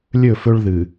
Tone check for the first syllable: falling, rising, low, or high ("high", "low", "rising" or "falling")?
falling